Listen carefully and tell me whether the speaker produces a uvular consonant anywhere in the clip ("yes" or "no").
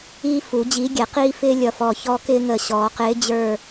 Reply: yes